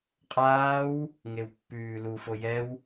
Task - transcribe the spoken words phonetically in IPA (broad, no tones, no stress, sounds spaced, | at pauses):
qʼ aː w | ŋ e w pː ʉː l u f o j ɛ w